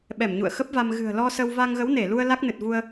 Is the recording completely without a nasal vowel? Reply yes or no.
yes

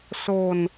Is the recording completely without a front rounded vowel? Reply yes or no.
yes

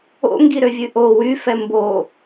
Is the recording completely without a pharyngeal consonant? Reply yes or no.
yes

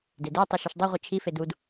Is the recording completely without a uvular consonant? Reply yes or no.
no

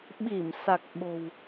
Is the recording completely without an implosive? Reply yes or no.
no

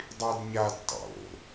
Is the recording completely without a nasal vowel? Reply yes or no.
yes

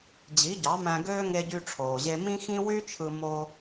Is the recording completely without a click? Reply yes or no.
yes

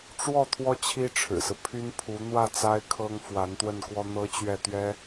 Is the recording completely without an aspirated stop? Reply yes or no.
no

